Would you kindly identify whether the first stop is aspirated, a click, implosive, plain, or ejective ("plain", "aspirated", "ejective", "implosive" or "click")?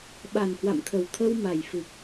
implosive